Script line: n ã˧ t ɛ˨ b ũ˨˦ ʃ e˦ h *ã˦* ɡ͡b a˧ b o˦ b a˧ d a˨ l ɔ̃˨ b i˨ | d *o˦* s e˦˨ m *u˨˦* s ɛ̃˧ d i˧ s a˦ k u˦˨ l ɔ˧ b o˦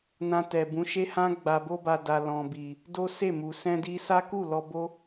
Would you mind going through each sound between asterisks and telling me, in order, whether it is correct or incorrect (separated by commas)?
correct, correct, incorrect